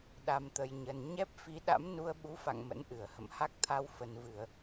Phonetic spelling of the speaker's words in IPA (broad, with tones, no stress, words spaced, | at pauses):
ɗa˧mt̪ə˧jɲə˧n ɲɛ˦˥p̚fi˨˦ ɗa̰˧˥mnu˧ə̯ ɓu˨˦fa̰˧˨ŋ mə̰˧˥nʔɨ˧˩ə̯hə̰˧˨m ha˦˥k̚t̪ʰa˧w fə˨˩nvɨ˧˩˨ə̯